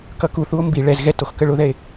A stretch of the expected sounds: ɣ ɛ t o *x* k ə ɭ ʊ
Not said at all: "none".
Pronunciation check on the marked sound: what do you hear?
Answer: x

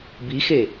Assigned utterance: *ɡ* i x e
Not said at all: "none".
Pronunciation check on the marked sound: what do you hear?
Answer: b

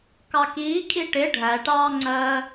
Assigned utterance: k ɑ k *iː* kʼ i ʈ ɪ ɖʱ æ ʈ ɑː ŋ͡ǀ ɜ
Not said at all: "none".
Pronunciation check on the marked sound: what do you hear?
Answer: iː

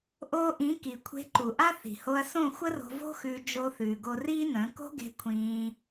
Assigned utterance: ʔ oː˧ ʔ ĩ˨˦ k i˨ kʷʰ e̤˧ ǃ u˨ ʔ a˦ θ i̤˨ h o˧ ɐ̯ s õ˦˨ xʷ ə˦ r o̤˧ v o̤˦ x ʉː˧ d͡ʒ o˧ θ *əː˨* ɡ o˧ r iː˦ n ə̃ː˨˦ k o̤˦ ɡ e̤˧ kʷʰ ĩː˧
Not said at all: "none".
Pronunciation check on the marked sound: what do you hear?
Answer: ʉː˨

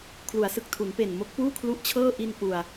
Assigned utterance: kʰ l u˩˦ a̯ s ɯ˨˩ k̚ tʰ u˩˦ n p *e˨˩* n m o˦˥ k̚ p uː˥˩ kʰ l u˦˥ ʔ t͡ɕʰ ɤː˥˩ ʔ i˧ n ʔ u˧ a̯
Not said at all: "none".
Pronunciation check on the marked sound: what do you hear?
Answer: e˨˩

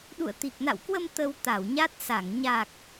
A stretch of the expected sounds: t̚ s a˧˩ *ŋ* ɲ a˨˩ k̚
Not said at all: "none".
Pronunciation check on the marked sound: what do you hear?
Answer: ŋ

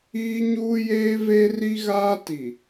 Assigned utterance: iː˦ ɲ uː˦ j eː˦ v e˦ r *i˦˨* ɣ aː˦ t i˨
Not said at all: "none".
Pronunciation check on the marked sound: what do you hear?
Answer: i˦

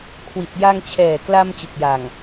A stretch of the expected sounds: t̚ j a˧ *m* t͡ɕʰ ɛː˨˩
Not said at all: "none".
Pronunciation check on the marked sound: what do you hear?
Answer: ŋ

